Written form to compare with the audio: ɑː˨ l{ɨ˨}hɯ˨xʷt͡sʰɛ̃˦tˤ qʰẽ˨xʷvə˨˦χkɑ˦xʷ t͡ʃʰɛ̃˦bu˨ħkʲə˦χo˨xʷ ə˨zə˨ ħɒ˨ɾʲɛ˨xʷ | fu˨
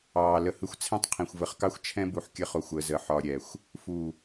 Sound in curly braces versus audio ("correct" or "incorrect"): incorrect